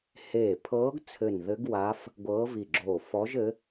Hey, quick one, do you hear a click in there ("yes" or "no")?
yes